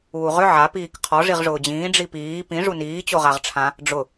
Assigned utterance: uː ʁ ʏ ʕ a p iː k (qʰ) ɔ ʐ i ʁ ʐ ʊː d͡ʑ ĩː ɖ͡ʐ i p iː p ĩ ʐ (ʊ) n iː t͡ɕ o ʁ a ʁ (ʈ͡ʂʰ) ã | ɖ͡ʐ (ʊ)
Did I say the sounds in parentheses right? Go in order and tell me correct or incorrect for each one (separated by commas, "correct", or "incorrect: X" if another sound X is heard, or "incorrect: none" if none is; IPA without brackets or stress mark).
correct, incorrect: u, correct, correct